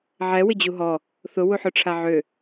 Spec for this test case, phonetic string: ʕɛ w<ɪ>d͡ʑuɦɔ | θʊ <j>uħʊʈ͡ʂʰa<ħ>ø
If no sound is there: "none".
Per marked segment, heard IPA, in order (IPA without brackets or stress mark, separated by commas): ɪ, w, ʕ